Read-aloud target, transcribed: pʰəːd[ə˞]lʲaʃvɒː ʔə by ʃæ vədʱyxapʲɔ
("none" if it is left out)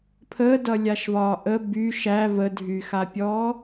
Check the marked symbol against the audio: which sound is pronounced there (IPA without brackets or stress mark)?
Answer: ʌ